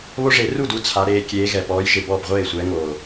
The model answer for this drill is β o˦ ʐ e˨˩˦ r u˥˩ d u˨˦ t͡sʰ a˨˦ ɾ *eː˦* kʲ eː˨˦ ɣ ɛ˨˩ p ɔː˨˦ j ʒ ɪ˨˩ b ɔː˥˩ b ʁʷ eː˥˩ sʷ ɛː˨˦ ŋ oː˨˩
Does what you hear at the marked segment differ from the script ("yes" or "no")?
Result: yes